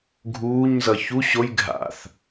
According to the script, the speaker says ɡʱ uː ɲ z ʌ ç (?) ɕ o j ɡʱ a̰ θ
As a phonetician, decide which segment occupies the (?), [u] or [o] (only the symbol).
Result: u